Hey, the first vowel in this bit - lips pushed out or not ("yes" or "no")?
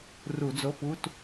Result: yes